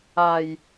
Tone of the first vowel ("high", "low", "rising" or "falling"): low